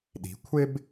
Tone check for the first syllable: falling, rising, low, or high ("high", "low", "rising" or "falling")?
rising